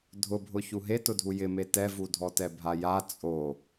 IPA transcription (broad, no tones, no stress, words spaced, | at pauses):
dʱʊbʱʊ çuɦetʊdʱu jɪme tɛvudʱɔtɛ bʱaja t͡sʼo